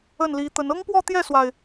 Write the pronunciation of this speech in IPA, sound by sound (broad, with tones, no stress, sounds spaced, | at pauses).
ə˥˩ n l i˧˥ t̪ ə˧˥ n ɤ˥ ŋ p w ɔ˥˧ t̪ j ɛ˥˩ s w a˩ ɪ̯